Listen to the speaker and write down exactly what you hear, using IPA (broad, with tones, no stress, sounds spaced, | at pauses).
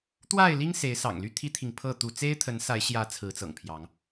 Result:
t̪ w a˥˨ ɪ̯ l i˦ ŋ s e˨˦ ɪ̯ s ɑ̰˨˩ ŋ l y˥˨ t̪ʰ i˦ t̪ʰ i˨ ŋ pʰ ɤ˥˨ t̪ u˥˨ t͡s e˦ ɪ̯ t̪ʰ ə˨˦ n s a˨˦ ɪ̯ ɕ j ä˨˦ t͡sʰ ɹ̩˨˦ t͡s ɤ̰˨˩ ŋ pʰ j ɑ˨˦ ŋ